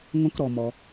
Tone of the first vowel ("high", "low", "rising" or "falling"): rising